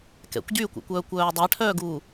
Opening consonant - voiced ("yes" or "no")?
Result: no